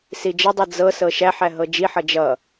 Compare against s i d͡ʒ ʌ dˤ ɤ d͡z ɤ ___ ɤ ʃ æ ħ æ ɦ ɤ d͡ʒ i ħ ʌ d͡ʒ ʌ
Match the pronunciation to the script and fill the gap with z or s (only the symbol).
s